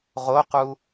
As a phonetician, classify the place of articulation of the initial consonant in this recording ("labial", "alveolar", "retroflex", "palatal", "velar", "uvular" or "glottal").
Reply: uvular